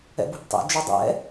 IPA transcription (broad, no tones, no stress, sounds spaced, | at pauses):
ɛ̰ b ṳ b tˤ ɛ̰ d͡ʒ u dˤ ɛ̰